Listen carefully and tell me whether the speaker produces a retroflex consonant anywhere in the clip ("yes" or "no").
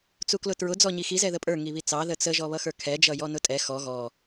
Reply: no